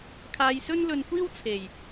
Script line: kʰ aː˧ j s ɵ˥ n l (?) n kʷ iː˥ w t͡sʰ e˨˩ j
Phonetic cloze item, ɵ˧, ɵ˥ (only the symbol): ɵ˧